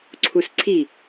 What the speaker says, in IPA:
ǀʰ u s ǀʰ i

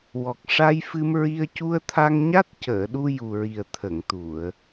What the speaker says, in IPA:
w ɔ˨˩ k̚ ʂ a˧ j f ɨ˧ m ɹ i˧ ə̯ c u˧ ə̯ t̪ʰ a˧ ŋ ɲ a˦˥ t̚ c əː˨˩˨ ɗ u˧ j u˨˩ ɹ i˨˩ ə̯ t̪ʰ ə˨˩˨ ŋ t̪ u˨˩˨ ə̯

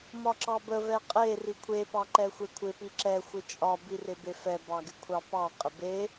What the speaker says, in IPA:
m ɒ ǁ ɑ b ə v ɛ qʼ e r i kʷʰ e p ɑ ǃ ɛ xʷ e kʷʰ ɪ p i ǁ ɛ xʷ ɪ t͡ʃʼ ɒ b i r ɪ b e f ɛ b ɑ ɡ ɪ kʷʰ ɑ p ɑ qʼ ɪ b e

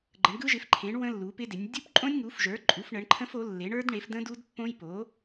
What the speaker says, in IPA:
ɡ͡ǃ ə˩˥ ɳ ɡ ɯ˦˥ ʒ ɪ˩˥ f ǃʰ ẽ˩˥ ɳ w ə̃˦˥ lː u˩˥ p ɪ˦˥ d ɪ˩˥ nʲ dʲ u˦˥ p ǃʼ õ˦˥ nʲ ŋ u˩˥ f ʒ ə˞˩˥ ǃʼ u˩˥ f ɳ ə˩˥ ɳ ǃʰ ə̃˦˥ f o˩˥ lː e˩˥ ɳ ə˞˦˥ d ɳ e˩˥ f d ə̃˦˥ d u˦˥ d pː õ˦˥ j p o˩˥

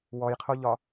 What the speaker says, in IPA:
w ɔ j qʰ o ʎ ɒ

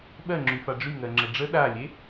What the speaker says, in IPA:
ɓ ɜ ŋ͡ǁ y f a ɖ͡ʐ y ŋ ɜ ŋ͡ǁ ə ɖ͡ʐ ə ɗ a lʲ e

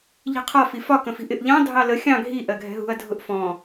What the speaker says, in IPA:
ʎ i̤ qʰ ɒ f i f ɒ k ə̃ f i̤ ʔ ɪ ʔ ʎ ɑ̃ dʱ ɑ l ə xʲ ɑ̃ ɡʱ i ʔ ɜ ɡʱ ɛ̤ ɦ ṳ ɐ̯ dʱ ʊ ʔ f ɔ̃

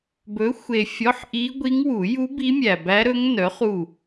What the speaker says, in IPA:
b ɵ˨˥ xʷ e˨ fʲ ɔ˧˥˧ ħ ʔ i˦˥ ɡʷ i˦˥ ŋ w u˨˩˦ j u˦˥ b i˦˥ mʲ æ˨ b æ˦˥ ɾ ɵ˦˥ ŋ n œ˨˥ χ u˦˨

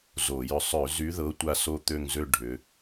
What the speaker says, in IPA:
z o˧˩˧ j ʏ˦˨ sˤ ø˧˩˧ z y˨˦ ð ɤ˨˦ tʷ a˦˨ s o˦˨ t̪ ø˦˨ ŋ z ø˦˨ ɖʱ ʏ˨˦

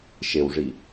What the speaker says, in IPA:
ʃ e w ʐ i

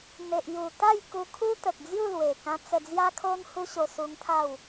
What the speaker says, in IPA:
n̪ e˨ ʔ j u˨˩ t̪ a˥˧ j k u˧ kʰ u˦ t̪ ə˨ k̚ d͡z j u˥˧ l w e˨˩ k ã˧ t͡s ə˧ d͡z j a˦ kʰ o˦ n h u˦ ɕ o˧ s u˧ ŋ t̪ʰ a˥˧ w

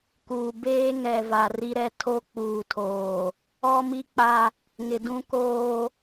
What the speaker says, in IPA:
k uː˨ b eː˦ ŋ ɛ˨ v a˨ r i˦ ɾ ɛ˦ tʰ o˦ k͡p uː˨ tʰ oː˨ | ɔ˦ m i˦ k͡p a˦ | ŋ ɪ˨ d ũ˦ k oː˦

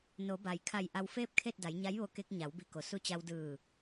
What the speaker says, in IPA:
n o˩˧ b a˩ j kʰ a˧˩ j ʔ a˧ w f eː˥˨ p̚ kʰ e˥˨ t̚ d a˩˧ j ɲ a˧˥ j ʋ o˧ k e˧ k̚ ɲ a˩˧ w b i˧˩ k o˩ s u˧ t͡ɕ a˧ w d ɯː˧˩

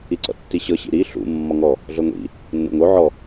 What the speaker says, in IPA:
i ǀ ɔ̰ tː i ɕ ɤ ɕ ḭ ɾ i ɬ ṵ mː ɔ ŋ ɔ | ɮ ɤ ŋʷ ḭ | nː o̰ ŋ o ʕ ɔ

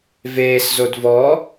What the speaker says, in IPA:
v eː s z o d v ɔ

